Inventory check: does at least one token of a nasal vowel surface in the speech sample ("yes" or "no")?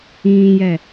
yes